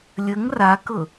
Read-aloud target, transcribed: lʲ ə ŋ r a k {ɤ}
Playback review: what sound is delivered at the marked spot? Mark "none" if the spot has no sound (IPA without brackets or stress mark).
ɤ